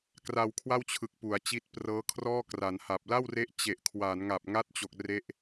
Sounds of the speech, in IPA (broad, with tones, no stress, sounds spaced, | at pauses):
k r a˧ w kʰ w a˥˩ w t͡ɕʰ ɯ˨˩ k̚ p u˩˦ a̯ t͡ɕ i˦˥ t̚ p r ɤː˦˥ kʰ r ɔː˥˩ k r a˩˦ n h a˨˩ p̚ l a˥˩ w r e˦˥ ʔ t͡ɕ e˨˩ ʔ kʰ w a˩˦ n ŋ a˨˩ p̚ ŋ a˦˥ t̚ t͡ɕ o˨˩ k̚ r e˦˥ ʔ